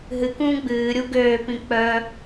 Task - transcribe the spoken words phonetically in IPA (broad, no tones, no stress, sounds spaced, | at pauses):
ɦ ɨ k ũː ɡ͡b ɨː ɾʲ u ɡ øː p ĩ k͡p œ